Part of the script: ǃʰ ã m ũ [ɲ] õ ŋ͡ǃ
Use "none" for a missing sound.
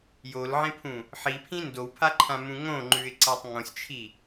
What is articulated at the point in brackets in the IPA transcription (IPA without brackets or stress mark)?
ŋ